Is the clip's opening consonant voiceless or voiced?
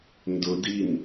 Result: voiced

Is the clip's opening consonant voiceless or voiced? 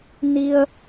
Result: voiced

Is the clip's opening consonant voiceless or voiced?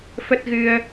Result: voiceless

